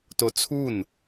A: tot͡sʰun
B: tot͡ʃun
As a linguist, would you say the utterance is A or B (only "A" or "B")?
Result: A